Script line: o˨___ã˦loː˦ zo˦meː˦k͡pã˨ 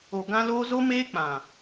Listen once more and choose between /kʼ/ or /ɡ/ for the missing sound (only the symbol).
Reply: ɡ